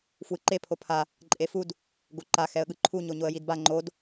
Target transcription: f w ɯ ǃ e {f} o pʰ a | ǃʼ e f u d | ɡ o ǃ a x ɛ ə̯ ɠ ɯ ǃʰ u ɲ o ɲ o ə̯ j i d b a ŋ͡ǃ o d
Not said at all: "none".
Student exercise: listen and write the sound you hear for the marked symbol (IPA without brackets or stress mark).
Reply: pʰ